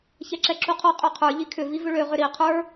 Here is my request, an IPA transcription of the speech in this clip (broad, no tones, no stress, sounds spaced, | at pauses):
ç ɛ ǁ ɛ ǁ u qʰ ɔ qʼ ø qʰ ə˞ ʎ i kʰ ʏ v i v ʏ ɭ ø ʁ ʏ ɾ i qʰ ə˞